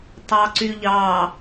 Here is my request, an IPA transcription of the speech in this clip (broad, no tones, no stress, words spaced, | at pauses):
tˤɑǀyʎɑ